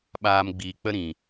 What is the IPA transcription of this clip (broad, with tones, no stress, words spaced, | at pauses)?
ɓaː˧mɡ͡biː˨k͡pə˦ɾĩ˨